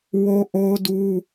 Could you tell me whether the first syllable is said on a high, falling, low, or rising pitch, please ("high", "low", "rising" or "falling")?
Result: high